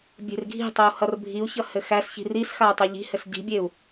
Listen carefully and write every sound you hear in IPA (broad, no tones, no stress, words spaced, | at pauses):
bʲe̤rɡʱi̤tˤeu̯ hʌrbʱiu̯çʌ hɘxæsçi̤ risxau̯ tˤɘʎi̤hɘs ɟi̤bʲeu̯